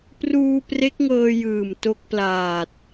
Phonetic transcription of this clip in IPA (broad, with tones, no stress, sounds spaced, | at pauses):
p r uː˧ p r e˦˥ k̚ ŋ ɤː˧ j ɯː˨˩ m t o˦˥ k̚ p l aː˨˩ t̚